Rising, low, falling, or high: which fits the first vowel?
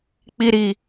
high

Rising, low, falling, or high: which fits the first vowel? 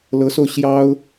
rising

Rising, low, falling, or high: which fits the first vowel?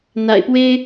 low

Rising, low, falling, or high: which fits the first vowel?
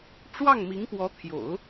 falling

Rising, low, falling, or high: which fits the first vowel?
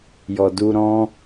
low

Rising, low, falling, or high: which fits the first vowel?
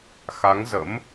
rising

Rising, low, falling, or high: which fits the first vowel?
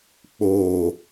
low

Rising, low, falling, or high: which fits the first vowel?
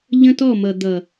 high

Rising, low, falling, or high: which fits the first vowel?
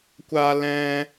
high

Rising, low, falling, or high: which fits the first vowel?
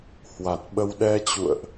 low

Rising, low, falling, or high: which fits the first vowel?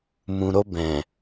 low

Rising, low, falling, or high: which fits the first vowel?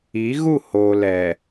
rising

